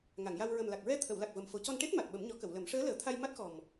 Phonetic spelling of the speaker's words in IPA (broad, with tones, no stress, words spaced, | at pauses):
ŋa˨˩˨ŋja˧w ɹə˨˩mla˨˩k̚ɹɛ˧ t̪ʰə˨˩˨wla˨˩k̚ və˨˩mfo˨˩˦ cɔ˧nʈe˦˥t̚ ma˨˩t̚ɓə˨˩˦mɲɔ˨˩˦kə˨˩˨w lə˨˩˦m ʂəː˧˥ləː˨˩˦t̪ʰa˧j ma˦˥t̚xɔ˨˩m